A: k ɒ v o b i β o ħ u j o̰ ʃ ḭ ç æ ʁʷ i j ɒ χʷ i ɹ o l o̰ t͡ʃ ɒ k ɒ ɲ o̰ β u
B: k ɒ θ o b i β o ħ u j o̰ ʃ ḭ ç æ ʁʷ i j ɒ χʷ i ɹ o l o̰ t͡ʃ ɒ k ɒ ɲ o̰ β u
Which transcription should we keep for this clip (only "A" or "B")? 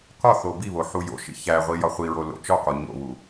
B